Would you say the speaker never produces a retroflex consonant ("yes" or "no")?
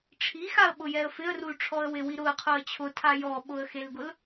no